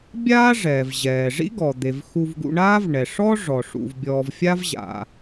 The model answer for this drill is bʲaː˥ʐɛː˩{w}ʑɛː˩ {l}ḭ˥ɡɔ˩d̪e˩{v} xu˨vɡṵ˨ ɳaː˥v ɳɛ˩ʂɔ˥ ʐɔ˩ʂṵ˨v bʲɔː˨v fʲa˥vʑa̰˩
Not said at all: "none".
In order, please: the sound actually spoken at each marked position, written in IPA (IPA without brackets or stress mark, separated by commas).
v, ʐ, v